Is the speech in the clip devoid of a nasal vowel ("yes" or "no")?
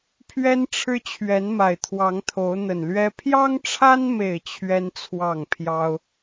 yes